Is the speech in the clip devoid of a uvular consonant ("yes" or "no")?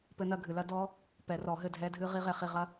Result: no